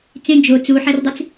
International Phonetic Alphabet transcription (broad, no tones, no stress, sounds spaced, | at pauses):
t͡s ẽ d͡ʒ o t͡s u ħ æ r dˤ e t͡s